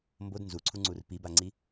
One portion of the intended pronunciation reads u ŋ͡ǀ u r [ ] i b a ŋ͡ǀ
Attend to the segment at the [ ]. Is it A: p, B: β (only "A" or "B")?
A